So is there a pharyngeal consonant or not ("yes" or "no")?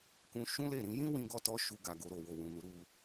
no